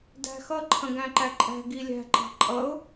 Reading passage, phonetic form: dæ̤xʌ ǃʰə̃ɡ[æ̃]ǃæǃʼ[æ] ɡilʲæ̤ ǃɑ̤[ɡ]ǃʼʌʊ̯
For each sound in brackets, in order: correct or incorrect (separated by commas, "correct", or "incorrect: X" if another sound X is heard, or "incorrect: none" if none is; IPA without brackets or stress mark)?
correct, incorrect: æ̤, incorrect: none